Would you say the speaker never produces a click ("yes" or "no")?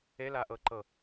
no